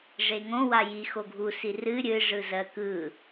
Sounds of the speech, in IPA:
ʐ e ŋ õ w a j i x o ɡʱ u s i r ɨ ɾʲ ɨ ʐ ɯ z ɜ k ɯ

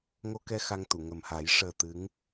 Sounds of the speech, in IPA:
ŋ o˧ k ɛ˧ x a˧ ŋ t̪ u˨˩˨ ŋ ə˨˩ m h a˨˩˦ j ʂ əː˨˩ t̪ ɨ˧˥ ŋ

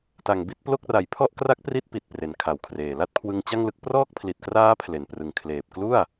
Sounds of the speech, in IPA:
t a˨˩ ŋ b i˦˥ t̚ p l o˥˩ k̚ r a˩˦ j pʰ ɔ˥˩ ʔ k r a˦˥ k̚ p r i˦˥ t̚ p i˨˩ t̚ p r e˨˩ n kʰ a˩˦ w kʰ r eː˨˩ l a˥˩ t̚ kʰ w ɯ˧ ŋ t͡ɕ a˥˩ ŋ l ɯ˦˥ k̚ p r ɔː˥˩ k̚ pʰ l i˨˩ t̚ k r aː˦˥ pʰ l e˨˩ n p r ɯ˨˩ ŋ kʰ l eː˨˩ p̚ k l u˥˩ a̯

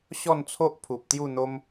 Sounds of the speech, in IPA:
ɕ ɔ˥˧ n t͡sʰ o˦ ʔ pʰ u˨ p̚ t̪ j u˥˧ n̪ o˦ m

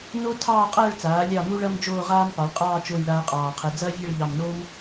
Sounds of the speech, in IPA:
n o˥ tʰ ɑː˥˧ qʼ ɐː˥˧ ɭ t͡s aː˩˧ lʲ ɑ˧˩ m u˧ ɭ ɐ˧ m d͡ʒ oː˥˧ ʁ aː˥ m p ɑ˩˧ ɭ qʼ ɑː˥˧ t͡ʃ o˥˧ j ɭ aː˥ qʼ ɑː˧˩ qʰ ɛ˧ d͡z ɐː˥ vʲ ɛ˥˧ ɭ ʎ ɑ˧˩ m n oː˥ m

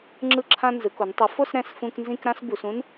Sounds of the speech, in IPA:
ŋ͡ǁ ɯ˧˩ ǁʰ ã˧ n z ɯ˩˧ k o˩˧ n tˤ ɯ˩˧ f o˥˧ s ɾ ɛ̃˧˩ s f ũ˧ k n z ĩ˥˧ k ɾ ã˥ s b u˩˧ s ũ˥ n

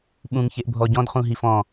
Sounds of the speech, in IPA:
ɓ ũ ŋ ç e ʔ bʱ ɔ ɟ ɔ̃ d χ ũ ɦ i f ɔ̃

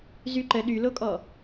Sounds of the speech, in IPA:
z y ǃ ə ɗ y l o kʼ ɔ

